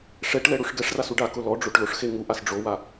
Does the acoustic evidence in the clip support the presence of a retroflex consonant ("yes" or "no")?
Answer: yes